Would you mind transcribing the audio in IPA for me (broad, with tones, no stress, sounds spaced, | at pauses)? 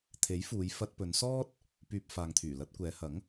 t̪ʰ e˨˥ j f uː˨˧ j f ɐ˧ t̚ p ɵ˨˧ n s ɔː˥ t̚ | p yː˧ p̚ f aː˨ ŋ t̪ʰ yː˨˩ l ɐ˧ t̚ kʷ ɛː˨˧ h ɐ˨˥ ŋ